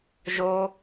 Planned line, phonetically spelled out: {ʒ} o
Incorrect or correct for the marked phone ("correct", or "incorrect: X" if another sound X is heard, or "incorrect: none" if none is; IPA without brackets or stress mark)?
correct